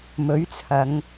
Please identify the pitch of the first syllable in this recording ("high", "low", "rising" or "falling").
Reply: rising